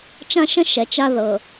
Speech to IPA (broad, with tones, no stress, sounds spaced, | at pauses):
t͡ʃ ã˦ ʃ ə̃˦ ʃ ɛ˨ t͡ʃ a˦ ð ɤ˨